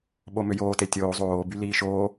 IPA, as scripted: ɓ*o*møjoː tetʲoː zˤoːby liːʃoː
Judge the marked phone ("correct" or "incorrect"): correct